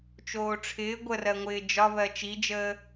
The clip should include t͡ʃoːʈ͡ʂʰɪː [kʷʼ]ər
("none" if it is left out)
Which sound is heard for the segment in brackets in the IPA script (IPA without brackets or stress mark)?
ɡʷ